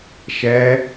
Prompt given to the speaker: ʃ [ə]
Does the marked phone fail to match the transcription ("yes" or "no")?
yes